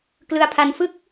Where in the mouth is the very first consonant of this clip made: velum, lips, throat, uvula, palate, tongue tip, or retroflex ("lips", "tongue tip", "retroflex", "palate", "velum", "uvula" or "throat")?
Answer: velum